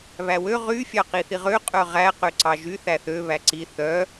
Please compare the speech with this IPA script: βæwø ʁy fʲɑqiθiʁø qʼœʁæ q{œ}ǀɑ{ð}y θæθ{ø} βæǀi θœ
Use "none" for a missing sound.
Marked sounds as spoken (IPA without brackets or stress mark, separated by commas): ø, ʒ, ø